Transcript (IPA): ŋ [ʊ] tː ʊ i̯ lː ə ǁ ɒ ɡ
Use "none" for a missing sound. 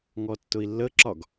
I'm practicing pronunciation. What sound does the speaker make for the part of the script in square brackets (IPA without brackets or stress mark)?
ɔ